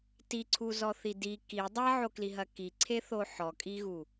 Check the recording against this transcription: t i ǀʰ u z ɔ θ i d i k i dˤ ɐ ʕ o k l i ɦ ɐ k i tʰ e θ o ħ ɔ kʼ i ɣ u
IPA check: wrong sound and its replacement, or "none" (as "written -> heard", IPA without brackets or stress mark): tʰ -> ǀʰ